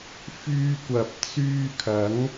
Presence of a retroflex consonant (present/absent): absent